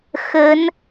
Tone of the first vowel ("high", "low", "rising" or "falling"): rising